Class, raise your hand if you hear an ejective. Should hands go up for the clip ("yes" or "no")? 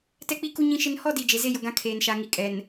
yes